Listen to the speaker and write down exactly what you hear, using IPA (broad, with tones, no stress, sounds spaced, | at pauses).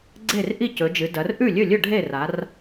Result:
ɡ͡ǀ e˥˩ r ʔ i˥˩ c ɵ˩˧ d͡ʒ ɨ˩˧ d ɐ˩˧ r ʔ ʉ˥˩ lʲ ɵ˥˩ lʲ ɵ˥˩ ɖʱ e˥˩ r a˩˧ r